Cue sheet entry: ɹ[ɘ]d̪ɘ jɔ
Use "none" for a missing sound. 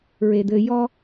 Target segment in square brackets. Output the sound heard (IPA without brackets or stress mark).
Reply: e